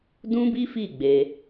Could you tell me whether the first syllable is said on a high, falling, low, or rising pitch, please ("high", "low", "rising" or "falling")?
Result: high